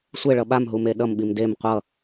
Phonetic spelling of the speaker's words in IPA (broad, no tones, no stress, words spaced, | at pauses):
sʷeɭʌ ɓamɦume ɗʌmɓim dem qʷʌ